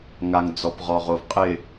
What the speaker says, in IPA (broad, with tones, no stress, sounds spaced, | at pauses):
ŋ a˨ ŋ d͡z ɔ˨ p ʁ ɔ˨ ʁ o˨ v qʼ ɪ˨